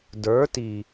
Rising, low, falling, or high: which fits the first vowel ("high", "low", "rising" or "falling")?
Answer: rising